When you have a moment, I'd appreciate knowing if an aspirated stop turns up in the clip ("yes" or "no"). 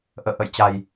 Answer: no